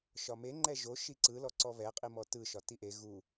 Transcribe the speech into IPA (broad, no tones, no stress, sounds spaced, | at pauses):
ʃ ɒ m e ŋ͡ǃ ɛ ʒ o ʃ i ǀ ɯ l ɔ ǀ ɔ β ɛ qʼ i m ɔ t ɯ ʃ ɒ t i ʔ e ɣ u